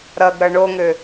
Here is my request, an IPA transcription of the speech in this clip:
ɾʌɡ ɾʌɳoŋø

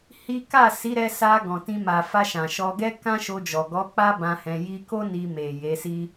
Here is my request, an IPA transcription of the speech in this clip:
hi˦ ka˦˨ si˨˦ɾɛ˧sa˧ ɡɔ̃˨tĩ˧ ma˨ fa˧ʃã˨ʃɔ˧ɡɛ˦ kã˦ʃo˧d͡ʒɔ˨ ɡɔ˨˦ k͡pa˦bã˧hɛ̃˧ ji˧ko˦ ni˧me˨ je˨˦si˦

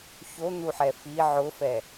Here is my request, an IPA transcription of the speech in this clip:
çon̪uħɛ fi ʕʊfɛ

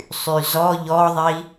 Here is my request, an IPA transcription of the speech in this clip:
sˤyzɔ ʎɔðˤi

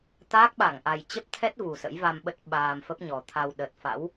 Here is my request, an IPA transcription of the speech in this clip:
t̪aː˦˥k̚ɓa˧˩ŋ ʔa˨˩jt͡ɕə˦˥p̚t̪ʰɛ˦˥t̚ vu˨˩sə̰˧˥jva˧mɓə˦˥t̚ ɓaː˧m fə˦˥p̚ɲɔ˨˩t̪ʰa˧w ɗə˨˩t̚fa̰˧˥w

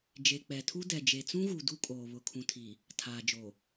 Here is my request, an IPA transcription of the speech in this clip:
d͡ʒe˨k͡pɛ˨tʰu˦ dɛ˨ d͡ʒe˨t͡sũ˦ɣu˨ du˦kʼoː˨ βʊ˨kʰũ˨tʰiː˨ | tʰaː˨d͡ʒoː˨

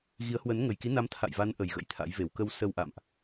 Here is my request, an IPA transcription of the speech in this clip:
ɣi˨˦ə̯hwə˨˦n ŋə˨˩j ki˨˦na˨˦m t̪ʰa̰˧˨jva˨˦n ʔə˨˩jɣə̰˧˥jt̪ʰa̰˧˥jve˧˩w kə˧w sə˧wʔa̰˧˨mʔ

